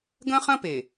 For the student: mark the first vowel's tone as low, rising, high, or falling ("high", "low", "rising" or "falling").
high